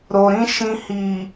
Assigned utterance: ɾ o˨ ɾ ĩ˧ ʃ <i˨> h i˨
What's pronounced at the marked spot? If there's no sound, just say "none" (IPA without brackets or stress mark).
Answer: ĩ˨